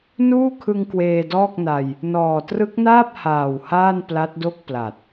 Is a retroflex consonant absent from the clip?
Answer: yes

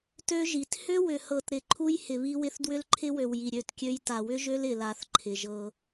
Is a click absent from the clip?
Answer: no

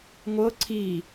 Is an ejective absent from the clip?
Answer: yes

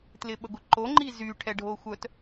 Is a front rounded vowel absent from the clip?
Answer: no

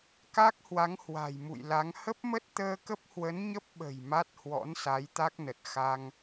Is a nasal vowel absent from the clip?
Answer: yes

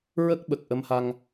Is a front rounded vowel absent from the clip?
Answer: yes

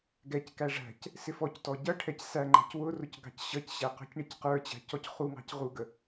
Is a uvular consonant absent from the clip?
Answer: no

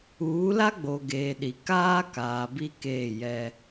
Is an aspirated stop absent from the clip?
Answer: yes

